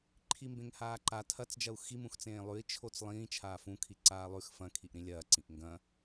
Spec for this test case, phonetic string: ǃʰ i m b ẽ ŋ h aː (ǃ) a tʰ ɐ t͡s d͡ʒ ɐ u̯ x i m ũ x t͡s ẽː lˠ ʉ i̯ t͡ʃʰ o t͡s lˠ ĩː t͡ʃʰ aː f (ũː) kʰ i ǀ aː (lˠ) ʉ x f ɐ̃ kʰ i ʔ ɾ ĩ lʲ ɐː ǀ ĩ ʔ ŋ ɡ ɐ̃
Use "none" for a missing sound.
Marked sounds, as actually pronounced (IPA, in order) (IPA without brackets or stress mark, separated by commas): ǃ, ũ, lˠ